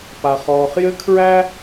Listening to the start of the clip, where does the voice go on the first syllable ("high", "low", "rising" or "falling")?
low